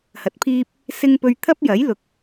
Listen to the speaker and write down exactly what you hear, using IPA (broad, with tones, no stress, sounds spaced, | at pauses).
h ɐ˨˥ t̚ pʰ iː˥ p̚ | s ɪ˥ ŋ p ɵ˧ ɥ t̪ʰ ɐ˥ p̚ j ɐ˨˥ j l ʊ˨ k̚